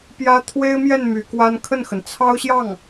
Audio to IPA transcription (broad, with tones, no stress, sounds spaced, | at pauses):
p j ä˥ t̪ʰ w e˥ ɪ̯ m j ɛ˥˩ n m y˧˥ k w a˥ n kʰ ə˥˩ n x ə˩ n t͡sʰ ɑ˥ ʊ̯ ɕ j ɑ˥˩ ŋ